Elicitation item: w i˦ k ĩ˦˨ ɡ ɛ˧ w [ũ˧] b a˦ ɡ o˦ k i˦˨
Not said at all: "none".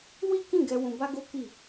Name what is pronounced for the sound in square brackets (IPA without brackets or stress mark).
ũ˧